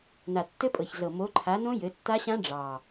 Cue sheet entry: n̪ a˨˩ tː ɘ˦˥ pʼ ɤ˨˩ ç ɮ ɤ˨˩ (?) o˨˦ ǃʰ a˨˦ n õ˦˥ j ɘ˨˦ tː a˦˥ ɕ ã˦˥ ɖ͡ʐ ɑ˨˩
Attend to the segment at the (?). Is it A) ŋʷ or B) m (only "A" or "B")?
B